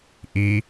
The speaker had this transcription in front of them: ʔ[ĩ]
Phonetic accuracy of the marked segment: incorrect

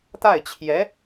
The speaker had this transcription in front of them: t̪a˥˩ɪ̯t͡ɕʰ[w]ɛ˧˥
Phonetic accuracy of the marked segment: incorrect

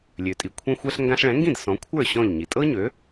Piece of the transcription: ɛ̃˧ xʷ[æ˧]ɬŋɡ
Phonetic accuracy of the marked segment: incorrect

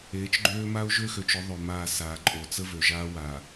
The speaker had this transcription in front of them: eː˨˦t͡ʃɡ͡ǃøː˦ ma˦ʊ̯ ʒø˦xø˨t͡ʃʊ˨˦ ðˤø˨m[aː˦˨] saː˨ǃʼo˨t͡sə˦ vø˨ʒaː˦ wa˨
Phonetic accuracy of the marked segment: correct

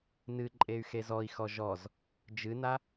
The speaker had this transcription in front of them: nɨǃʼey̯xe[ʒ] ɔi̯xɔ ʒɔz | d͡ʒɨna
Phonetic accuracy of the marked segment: incorrect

